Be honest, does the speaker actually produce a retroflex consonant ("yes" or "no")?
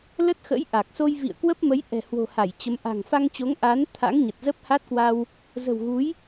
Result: no